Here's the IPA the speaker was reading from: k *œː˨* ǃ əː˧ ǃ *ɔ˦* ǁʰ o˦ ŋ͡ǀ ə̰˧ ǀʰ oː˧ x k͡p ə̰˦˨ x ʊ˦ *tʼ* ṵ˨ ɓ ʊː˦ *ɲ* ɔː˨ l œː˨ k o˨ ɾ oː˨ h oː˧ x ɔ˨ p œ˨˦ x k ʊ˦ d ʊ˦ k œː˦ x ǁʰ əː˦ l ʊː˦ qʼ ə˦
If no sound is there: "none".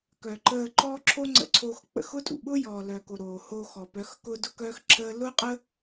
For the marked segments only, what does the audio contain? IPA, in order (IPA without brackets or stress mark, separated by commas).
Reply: œ˨, ɔː˦, tʼ, j